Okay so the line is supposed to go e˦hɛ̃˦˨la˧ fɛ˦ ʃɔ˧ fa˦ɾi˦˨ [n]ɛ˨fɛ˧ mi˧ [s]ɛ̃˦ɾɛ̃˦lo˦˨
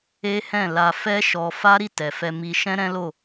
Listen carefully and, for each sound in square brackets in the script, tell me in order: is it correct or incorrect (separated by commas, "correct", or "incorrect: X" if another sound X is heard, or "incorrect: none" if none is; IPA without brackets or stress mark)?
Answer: incorrect: t, incorrect: ʃ